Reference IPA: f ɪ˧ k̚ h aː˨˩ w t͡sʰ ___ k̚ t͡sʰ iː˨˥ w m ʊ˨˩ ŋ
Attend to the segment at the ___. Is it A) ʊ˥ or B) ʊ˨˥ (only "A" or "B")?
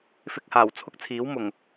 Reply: A